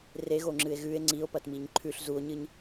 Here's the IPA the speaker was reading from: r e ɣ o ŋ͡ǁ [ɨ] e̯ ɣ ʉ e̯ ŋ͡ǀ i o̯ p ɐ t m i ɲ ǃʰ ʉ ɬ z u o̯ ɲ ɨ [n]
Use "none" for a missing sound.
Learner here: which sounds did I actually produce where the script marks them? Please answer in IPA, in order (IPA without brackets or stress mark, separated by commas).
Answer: ɨ, ɲ